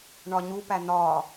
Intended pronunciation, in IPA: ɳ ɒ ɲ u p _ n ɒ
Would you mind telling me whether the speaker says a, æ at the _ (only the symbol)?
æ